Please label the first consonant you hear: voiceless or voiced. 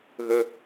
voiced